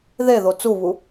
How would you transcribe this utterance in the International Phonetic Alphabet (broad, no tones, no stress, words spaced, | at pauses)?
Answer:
ðeðo t͡suβu